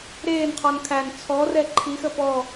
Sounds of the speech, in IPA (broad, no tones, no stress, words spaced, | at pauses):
ɾeːnqʰɔn kʰæn t͡sʰɔrɛ ǃʰixə pɔ